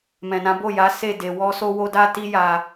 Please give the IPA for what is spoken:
m ɛ̃˨ n ã˨˦ b o˦˨ j a˨˦ s e˦˨ d e˨ w ɔ˧ s o˧ w o˧ d a˦ t i˦ j a˧

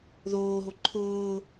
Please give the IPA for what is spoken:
ð oː ɦ o ǃʰ ʊː

